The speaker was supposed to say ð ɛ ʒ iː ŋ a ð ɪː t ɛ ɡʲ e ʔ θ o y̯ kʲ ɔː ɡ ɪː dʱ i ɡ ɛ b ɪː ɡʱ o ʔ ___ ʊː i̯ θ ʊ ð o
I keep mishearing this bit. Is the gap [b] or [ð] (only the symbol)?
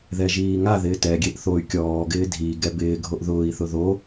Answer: ð